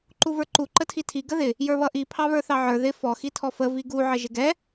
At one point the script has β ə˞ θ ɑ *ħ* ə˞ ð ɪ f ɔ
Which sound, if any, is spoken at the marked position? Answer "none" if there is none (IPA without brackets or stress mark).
ʕ